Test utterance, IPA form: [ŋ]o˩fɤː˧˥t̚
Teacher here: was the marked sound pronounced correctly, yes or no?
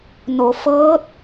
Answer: no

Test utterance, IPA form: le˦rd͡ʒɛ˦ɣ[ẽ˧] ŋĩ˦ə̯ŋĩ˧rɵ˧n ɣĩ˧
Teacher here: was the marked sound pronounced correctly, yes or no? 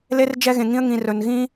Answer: yes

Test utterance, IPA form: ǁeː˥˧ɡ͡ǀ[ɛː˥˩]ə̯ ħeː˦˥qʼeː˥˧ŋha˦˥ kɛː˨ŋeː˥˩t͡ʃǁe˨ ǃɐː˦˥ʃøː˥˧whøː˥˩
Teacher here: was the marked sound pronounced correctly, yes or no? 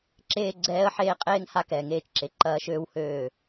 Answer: no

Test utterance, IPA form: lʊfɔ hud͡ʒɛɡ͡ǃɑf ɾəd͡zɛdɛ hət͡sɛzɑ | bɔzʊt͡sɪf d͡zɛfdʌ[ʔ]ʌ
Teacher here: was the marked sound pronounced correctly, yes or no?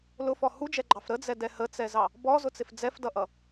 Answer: yes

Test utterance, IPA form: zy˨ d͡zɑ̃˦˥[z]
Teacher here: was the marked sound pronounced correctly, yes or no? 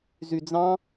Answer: no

